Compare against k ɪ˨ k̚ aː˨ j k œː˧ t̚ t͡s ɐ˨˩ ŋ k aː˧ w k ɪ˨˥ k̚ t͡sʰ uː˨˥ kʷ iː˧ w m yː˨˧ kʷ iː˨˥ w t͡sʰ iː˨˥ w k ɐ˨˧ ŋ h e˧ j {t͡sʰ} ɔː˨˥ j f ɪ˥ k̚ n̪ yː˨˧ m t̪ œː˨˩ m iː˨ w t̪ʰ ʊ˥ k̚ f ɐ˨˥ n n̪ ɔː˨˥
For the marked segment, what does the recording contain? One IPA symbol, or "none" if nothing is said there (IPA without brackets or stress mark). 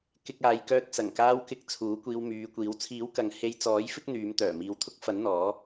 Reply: t͡s